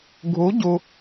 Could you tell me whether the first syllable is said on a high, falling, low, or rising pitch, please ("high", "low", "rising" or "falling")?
rising